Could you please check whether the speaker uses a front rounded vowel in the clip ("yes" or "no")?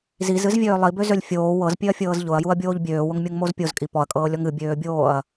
yes